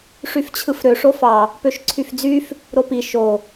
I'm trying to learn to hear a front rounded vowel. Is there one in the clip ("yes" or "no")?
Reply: yes